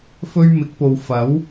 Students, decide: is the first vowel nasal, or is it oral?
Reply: oral